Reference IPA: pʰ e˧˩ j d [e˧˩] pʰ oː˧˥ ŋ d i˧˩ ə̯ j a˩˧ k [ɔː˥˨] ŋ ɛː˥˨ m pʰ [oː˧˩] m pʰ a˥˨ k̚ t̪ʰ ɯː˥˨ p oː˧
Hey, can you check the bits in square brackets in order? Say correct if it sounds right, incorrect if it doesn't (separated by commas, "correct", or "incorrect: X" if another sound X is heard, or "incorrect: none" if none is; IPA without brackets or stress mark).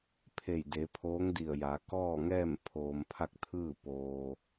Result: incorrect: e˩˧, correct, incorrect: oː˧